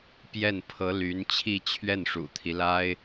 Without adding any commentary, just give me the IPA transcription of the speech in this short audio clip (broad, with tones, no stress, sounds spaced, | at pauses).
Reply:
p j ɛ˥˩ n pʰ ɤ˧˥ l y˧˥ n t͡ɕʰ i˥˧ t͡ɕʰ ɥ ɛ˥˩ n ʂ ṵ˨˩ t̪ʰ i˦ l a˥ ɪ̯